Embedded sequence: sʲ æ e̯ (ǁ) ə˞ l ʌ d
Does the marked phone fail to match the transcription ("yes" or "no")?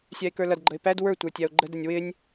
yes